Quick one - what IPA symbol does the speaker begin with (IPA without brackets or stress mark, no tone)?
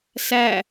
s